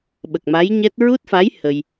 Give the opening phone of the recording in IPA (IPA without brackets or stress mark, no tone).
ɓ